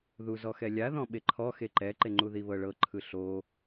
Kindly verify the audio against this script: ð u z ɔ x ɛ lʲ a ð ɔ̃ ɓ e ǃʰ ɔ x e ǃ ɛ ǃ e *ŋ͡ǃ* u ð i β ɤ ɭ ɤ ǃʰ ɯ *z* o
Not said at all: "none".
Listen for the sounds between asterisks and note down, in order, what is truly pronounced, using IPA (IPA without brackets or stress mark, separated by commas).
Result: ŋ͡ǃ, ɬ